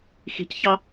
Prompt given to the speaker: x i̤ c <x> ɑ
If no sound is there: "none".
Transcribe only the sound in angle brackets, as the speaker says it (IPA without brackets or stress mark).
ç